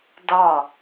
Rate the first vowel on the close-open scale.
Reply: open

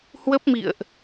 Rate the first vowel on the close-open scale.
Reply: mid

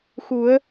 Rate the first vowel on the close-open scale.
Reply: close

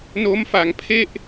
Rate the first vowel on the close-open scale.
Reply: mid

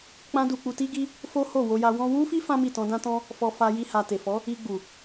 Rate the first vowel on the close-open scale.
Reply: open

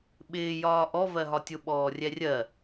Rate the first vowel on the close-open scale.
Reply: close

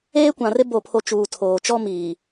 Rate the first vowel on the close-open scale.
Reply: mid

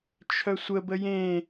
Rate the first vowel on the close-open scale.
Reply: mid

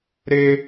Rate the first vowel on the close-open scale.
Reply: mid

